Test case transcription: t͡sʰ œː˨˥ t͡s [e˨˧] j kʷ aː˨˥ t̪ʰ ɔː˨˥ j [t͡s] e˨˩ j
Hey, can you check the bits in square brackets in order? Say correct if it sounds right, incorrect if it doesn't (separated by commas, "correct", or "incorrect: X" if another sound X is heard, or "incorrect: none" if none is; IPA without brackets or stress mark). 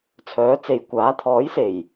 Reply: incorrect: e˨, incorrect: s